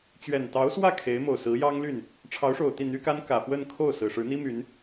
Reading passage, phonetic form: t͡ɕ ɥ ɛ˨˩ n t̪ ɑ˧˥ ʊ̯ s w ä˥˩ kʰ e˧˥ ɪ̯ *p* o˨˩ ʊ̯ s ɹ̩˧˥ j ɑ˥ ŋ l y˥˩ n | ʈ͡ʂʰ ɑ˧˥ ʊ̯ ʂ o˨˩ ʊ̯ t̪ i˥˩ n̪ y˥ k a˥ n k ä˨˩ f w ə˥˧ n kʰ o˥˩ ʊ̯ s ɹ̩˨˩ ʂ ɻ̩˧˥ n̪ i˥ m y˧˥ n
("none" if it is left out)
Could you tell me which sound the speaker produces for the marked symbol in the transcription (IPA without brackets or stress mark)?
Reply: m